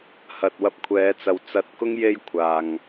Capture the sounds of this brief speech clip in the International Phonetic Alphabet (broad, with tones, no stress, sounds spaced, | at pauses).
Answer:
h ɐ˨ t̚ w ɐ˧ p̚ kʷʰ ɛː˨˧ t͡s ɐ˨ w t͡s ɐ˧ t̚ k ʊ˥ ŋ j e˥ j kʷʰ aː˨ ŋ